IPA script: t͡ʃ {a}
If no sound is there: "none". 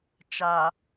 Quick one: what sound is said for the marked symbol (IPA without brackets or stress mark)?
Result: a